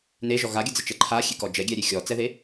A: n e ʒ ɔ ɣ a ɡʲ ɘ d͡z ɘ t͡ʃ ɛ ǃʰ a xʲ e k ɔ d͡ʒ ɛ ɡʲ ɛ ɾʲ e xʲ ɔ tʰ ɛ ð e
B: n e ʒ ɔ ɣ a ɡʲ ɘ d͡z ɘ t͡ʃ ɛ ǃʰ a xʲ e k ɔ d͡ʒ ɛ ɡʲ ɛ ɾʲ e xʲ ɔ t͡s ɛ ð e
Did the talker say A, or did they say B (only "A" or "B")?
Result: B